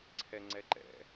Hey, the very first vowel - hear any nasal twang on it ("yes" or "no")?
no